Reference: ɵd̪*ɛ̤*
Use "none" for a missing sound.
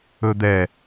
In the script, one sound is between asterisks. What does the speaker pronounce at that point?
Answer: ɛ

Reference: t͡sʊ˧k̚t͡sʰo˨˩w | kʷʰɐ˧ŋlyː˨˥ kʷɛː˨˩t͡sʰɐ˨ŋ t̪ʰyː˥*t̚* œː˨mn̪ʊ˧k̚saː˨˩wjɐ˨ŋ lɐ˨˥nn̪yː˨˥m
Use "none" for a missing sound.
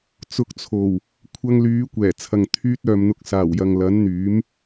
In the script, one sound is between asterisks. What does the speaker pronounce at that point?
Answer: t̚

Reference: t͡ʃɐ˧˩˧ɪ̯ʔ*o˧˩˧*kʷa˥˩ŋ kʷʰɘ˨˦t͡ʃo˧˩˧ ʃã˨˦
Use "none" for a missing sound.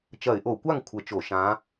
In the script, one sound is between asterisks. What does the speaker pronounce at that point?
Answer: o˧˩˧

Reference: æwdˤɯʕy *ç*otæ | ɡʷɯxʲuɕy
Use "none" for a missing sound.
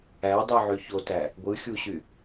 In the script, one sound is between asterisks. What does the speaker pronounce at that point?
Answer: ç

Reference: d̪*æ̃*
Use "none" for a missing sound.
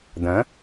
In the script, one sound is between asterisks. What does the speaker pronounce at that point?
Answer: ɐ̃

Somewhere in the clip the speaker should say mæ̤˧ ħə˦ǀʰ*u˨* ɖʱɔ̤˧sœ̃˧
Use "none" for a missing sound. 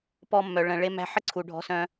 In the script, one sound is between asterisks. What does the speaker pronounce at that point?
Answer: u˨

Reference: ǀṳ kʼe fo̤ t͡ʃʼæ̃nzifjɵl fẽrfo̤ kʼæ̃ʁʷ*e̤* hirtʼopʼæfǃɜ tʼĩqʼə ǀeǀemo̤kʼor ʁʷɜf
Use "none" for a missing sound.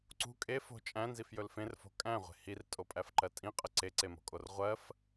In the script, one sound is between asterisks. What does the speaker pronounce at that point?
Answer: e̤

